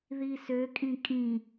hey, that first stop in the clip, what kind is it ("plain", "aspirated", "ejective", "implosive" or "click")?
ejective